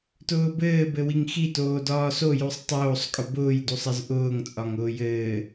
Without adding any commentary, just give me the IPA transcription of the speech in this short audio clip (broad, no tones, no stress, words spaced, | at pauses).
tʊːbɘː bɘwiŋxi toːdɒːso jusˤtˤoːsˤ kʼʊbʊːj dusˤɘzʔʊːŋ t͡sʼɒŋʊːjɘː